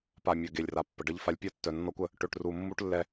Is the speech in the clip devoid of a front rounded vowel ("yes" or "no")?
no